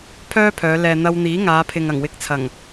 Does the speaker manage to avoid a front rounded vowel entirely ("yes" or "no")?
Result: no